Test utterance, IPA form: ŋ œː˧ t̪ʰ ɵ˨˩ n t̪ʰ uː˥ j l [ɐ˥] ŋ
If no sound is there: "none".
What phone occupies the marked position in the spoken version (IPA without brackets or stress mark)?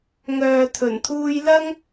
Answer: ɐ˥